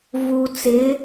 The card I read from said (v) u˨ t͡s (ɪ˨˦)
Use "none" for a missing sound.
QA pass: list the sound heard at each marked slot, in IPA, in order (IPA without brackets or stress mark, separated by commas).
v, ɪ˨˦